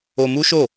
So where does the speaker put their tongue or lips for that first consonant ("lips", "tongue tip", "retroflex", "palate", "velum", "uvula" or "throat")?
lips